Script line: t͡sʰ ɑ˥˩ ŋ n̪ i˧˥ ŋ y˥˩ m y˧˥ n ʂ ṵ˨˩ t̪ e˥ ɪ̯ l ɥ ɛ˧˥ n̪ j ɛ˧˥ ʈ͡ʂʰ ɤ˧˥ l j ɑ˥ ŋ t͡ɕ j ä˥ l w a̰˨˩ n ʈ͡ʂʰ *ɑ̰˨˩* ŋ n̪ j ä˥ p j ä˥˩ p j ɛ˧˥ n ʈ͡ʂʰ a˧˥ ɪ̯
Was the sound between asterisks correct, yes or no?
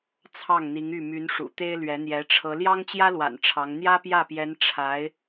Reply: no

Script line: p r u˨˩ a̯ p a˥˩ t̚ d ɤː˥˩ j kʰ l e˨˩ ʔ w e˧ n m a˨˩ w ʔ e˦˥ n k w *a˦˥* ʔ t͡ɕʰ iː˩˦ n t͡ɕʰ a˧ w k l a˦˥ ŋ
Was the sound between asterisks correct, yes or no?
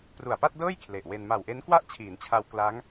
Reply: no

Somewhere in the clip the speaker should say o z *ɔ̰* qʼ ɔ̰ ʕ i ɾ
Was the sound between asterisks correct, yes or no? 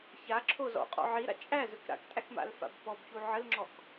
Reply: yes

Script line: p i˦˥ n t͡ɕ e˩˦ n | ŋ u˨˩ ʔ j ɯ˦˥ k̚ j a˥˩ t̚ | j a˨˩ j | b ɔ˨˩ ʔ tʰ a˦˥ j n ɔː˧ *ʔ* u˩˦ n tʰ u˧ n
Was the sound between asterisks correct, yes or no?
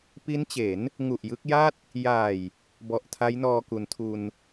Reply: no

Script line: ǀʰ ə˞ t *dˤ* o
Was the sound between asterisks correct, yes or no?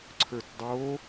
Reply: yes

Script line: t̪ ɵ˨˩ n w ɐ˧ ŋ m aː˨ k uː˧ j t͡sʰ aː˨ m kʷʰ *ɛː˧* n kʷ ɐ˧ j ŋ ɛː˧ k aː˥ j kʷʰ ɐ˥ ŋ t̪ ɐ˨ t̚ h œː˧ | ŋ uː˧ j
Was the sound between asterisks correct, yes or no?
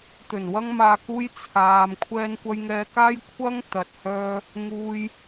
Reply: no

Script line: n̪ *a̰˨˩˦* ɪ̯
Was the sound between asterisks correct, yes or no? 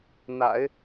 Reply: yes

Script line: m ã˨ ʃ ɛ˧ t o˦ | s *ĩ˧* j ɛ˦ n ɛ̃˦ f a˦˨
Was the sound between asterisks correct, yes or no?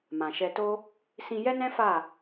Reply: yes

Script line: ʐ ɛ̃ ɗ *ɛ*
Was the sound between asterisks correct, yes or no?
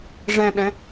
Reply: no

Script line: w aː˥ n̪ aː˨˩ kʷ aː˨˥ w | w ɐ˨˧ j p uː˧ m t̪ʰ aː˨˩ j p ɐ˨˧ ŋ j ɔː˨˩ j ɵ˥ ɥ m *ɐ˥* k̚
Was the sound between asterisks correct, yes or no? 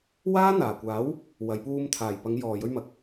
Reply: no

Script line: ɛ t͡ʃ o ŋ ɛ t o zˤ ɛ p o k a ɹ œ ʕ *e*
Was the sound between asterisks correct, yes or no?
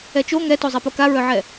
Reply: no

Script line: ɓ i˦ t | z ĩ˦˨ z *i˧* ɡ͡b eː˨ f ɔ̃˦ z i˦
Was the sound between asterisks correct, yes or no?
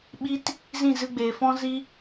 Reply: no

